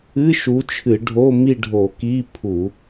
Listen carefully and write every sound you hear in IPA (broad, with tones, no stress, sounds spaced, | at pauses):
ɨ˧˥˧ ʃ u˨˥ t͡ʃʰ ɨ˧˩˧ ɖʱ o˧˥˧ m i˦˨ ɖʱ o˧˩˧ k i˧˥˧ pʰ u˧˩˧